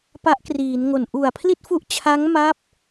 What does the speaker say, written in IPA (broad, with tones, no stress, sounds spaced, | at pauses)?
p a˦˥ ʔ k r iː˩˦ n ŋ o˨˩ n ʔ u˨˩ a̯ pʰ l i˥˩ t̚ f u˦˥ ʔ t͡ɕʰ a˦˥ ŋ m a˦˥ p̚